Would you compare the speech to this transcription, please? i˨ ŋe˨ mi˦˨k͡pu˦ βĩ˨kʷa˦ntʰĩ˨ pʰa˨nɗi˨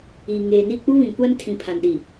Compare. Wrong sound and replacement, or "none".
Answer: m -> n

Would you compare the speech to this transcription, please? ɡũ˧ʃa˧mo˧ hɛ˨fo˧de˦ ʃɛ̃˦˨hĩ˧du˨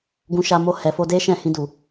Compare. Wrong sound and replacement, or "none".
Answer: none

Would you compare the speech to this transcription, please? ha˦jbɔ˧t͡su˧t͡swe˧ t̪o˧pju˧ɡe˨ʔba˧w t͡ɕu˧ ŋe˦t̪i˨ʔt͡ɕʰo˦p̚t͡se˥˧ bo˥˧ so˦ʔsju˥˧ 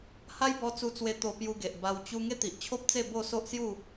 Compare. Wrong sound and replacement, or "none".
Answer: none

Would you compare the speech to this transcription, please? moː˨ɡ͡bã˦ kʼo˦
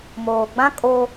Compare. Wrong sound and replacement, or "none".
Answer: none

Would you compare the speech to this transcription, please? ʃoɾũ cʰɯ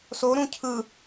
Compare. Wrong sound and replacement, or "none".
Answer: ʃ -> s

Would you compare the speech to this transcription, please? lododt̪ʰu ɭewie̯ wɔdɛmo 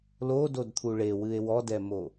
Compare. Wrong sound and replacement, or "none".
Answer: i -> ɨ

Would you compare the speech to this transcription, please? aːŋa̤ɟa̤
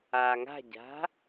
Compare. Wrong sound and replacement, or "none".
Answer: none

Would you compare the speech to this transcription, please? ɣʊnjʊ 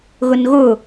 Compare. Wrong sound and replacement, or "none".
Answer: j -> ɣ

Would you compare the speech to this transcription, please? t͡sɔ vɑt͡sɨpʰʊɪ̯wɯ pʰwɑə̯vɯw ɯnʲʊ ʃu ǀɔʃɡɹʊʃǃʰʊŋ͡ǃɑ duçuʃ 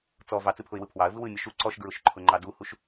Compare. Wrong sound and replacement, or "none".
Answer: ç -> h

